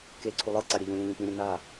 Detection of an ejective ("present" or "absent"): absent